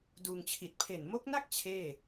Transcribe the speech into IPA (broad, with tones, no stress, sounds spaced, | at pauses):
d uː˧ ŋ t͡ɕʰ i˨˩ t̚ pʰ e˨˩ n m o˦˥ k̚ n a˥˩ k̚ t͡ɕʰ eː˥˩